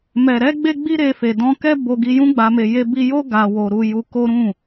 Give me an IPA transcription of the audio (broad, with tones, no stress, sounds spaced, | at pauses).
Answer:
m ɛ˨ ɾ ɛ˧ ɡ͡b e˦ ɡ͡b i˦ ɾ e˧ f e˨ d ɔ̃˧ k ɛ˦ b o˧ ɡ i˧ j ũ˦ ɡ͡b a˧ m e˧ j e˧ b i˧ j o˦ ɡ a˧ w o˧ ɾ u˧ j u˧ k o˦ ɾ ũ˦˨